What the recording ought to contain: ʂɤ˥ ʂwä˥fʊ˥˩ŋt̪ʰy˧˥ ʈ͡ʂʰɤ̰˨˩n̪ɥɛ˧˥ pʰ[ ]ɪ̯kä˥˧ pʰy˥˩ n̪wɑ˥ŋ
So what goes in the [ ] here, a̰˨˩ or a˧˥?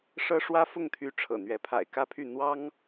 a̰˨˩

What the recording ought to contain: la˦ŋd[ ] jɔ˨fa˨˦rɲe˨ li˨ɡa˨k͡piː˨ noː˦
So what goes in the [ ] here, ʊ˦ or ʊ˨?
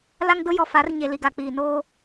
ʊ˦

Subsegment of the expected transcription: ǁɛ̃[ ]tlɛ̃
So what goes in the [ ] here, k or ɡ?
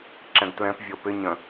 ɡ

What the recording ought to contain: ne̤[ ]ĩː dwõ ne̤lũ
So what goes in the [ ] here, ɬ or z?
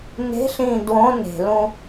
ɬ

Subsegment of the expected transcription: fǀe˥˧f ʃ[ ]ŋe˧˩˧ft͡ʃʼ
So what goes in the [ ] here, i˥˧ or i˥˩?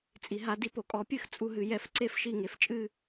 i˥˩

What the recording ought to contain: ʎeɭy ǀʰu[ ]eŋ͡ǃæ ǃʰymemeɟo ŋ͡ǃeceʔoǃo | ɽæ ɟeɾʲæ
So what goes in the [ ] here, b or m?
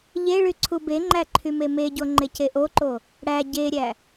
b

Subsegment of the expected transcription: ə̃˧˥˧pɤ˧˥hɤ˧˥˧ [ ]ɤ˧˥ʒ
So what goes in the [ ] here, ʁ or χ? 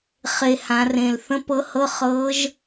χ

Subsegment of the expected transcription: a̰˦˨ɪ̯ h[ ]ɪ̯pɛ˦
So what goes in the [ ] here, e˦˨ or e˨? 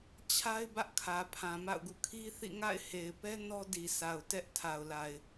e˨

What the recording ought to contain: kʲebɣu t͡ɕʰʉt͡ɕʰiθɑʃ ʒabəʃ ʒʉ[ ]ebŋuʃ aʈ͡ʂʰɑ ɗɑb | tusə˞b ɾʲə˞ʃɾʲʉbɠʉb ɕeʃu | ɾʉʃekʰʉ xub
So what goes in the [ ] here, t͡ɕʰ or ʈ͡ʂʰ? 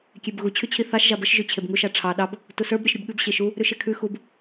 t͡ɕʰ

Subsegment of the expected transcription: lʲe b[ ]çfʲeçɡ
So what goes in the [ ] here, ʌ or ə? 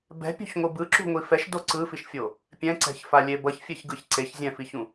ʌ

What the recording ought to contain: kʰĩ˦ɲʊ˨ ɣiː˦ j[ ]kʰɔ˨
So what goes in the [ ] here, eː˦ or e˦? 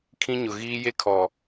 e˦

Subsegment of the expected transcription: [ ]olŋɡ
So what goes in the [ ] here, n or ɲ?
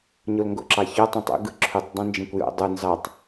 ɲ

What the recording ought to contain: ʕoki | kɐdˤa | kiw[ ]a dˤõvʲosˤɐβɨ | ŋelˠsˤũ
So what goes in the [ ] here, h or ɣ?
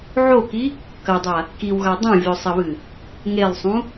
ɣ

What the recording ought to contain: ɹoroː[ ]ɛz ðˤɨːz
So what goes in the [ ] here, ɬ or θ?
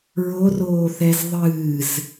θ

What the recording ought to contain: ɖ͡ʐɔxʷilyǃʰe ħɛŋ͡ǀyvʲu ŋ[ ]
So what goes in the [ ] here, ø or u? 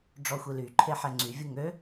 ø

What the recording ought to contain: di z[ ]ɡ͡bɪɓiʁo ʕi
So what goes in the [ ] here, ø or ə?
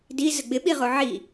ə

